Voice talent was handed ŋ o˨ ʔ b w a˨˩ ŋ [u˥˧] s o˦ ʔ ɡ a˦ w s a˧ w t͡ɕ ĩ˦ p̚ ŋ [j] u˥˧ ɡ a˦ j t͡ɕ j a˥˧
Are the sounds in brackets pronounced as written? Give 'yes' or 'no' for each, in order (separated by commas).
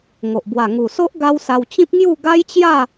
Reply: no, yes